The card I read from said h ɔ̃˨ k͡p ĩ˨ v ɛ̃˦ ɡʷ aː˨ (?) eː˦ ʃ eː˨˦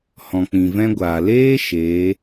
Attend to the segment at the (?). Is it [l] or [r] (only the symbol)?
l